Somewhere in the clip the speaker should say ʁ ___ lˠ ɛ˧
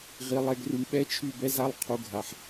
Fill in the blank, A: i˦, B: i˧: B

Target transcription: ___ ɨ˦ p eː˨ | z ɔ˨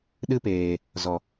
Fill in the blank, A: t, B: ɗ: B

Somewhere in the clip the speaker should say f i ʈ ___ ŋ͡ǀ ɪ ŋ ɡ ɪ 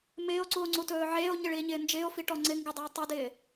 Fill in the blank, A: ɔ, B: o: A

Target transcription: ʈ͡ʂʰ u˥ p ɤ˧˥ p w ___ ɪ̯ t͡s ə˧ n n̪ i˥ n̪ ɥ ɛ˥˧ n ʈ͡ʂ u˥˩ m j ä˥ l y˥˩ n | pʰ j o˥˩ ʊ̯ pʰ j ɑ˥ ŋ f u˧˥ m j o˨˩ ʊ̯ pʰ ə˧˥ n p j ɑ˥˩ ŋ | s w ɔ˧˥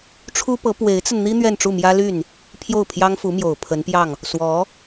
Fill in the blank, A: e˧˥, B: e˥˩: A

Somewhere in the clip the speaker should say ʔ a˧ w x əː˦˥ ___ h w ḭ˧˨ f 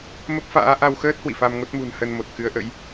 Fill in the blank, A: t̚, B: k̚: A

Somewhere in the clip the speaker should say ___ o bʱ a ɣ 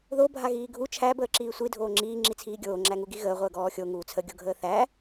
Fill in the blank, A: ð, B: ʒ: A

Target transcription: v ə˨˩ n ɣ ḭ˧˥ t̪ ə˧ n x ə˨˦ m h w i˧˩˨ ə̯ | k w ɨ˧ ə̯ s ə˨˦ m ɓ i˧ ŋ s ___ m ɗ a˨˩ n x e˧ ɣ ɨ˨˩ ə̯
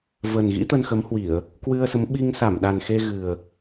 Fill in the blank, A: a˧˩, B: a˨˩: A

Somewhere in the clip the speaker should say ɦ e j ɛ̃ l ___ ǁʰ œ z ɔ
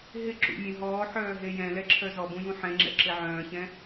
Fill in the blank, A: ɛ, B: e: A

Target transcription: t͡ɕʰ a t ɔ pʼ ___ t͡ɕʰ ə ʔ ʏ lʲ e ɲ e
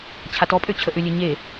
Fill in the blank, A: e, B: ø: B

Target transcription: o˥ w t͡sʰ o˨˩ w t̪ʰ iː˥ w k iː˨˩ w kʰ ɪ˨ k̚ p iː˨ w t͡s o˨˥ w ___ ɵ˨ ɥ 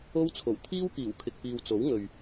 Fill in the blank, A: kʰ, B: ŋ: B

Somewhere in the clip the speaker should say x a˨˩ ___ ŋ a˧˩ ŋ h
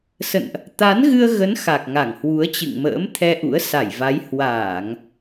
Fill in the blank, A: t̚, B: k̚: B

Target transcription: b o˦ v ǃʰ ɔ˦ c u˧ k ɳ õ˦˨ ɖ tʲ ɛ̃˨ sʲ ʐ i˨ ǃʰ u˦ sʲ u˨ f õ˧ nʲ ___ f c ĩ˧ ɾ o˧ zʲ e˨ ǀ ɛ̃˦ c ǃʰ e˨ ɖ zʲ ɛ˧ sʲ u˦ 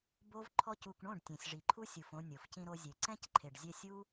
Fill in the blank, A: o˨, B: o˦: A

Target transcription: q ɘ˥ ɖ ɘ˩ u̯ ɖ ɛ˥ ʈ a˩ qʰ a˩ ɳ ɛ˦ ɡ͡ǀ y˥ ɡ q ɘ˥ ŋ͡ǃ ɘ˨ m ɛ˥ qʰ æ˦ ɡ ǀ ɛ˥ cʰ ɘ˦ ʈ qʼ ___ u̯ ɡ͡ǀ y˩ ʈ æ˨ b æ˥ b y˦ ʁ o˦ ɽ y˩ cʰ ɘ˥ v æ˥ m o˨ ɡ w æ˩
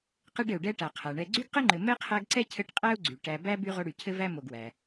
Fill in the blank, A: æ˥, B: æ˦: A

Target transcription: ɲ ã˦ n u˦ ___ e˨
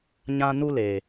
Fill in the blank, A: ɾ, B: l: B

